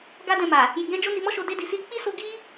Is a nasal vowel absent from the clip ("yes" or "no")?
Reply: no